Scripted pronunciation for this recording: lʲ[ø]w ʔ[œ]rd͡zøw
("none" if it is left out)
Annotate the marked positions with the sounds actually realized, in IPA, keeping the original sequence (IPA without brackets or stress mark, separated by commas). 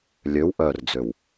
ø, œ